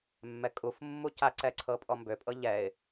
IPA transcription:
mː ɛ kʼ u f mː u c a ǀ ɛ ǀʰ ɤ pʼ ɔ m b ø pʼ ɤ ʎ ɛ ɪ̯

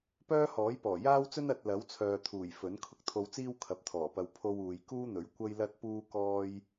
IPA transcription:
p œː˥ h ɔː˨˥ j p ɔː˨˩ j aː˥ w t͡s ɵ˥ n ɐ˨ t̚ l ɐ˨˥ w t͡sʰ œː˨ t̪ʰ uː˨˩ j f ɵ˨˥ n kʰ ʊ˧ k̚ t̪ʰ o˧ w t͡s iː˥ w kʰ ɐ˨ p̚ t̪ʰ ɔː˨˩ p ɐ˧ w pʰ o˧ w uː˨ j k uː˥ n̪ ɵ˨˥ ɥ kʷ ɐ˥ j l ɐ˥ t̚ p uː˥ k ɔː˥ j

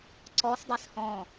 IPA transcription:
ǀ ɔ s dˤ e s h ɔ̃

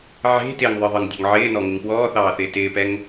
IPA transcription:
ʕ e̤ t ɪː ŋ ðˤ ɤ ðˤ ɤ ŋ dʲ ɔ̤ ŋ ʕ ɪː n ɔ ŋ ɪ ŋ p w ɔː θ ɑː θ ɪː t ɪː p ɛ ŋ

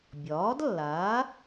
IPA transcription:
bʲ ɒː˩˥ d lː aː˩˥

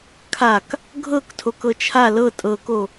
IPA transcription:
kʰ a k | ɡʱ ɤ k tʰ o k ɤ t͡ʃʰ a l ɤ tʼ ɤ k o

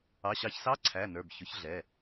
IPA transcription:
ɑ˩˧˩ ɕ ɑ˨˩˦ ç s ɑ˧˥˧ ǀʰ æ˩˧˩ n ə˞˩˧˩ b ç ʊ˩˥ ç ɮ ɛ˩˧˩

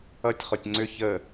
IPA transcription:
ʌ tʲ χ o tʲ ŋ͡ǀ ʏ ç ə

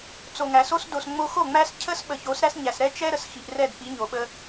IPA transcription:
t͡s o˨ ŋ æ˨ s o˦ s d o˨ s ŋ͡m o˦ x o˦˨ ŋ͡m æ˦ s cʰ ə˦ s ɓ ə˨ ç o˨˦ s ɾ æ˦ s ɲ æ˨ s ɾ ɛ˦ t͡ʃ ɛ˦ ɾ ə˨ s x i˨ ʔ r ɛ˦˨ d p i˨˦ ɲ o˨ ɓ ə˦

